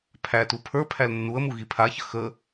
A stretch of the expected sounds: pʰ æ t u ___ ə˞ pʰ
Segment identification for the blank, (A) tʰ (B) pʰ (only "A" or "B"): B